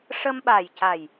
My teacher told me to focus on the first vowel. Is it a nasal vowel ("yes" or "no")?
no